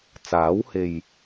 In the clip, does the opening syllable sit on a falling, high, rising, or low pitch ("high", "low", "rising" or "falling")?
rising